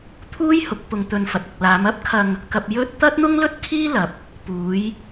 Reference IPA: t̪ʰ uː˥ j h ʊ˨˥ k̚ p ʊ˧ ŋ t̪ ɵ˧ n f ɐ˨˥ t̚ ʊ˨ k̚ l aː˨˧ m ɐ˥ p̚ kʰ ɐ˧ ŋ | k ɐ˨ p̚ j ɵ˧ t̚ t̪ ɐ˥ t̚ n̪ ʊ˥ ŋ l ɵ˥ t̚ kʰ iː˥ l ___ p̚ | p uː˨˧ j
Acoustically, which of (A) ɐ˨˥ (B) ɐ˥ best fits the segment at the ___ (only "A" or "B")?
A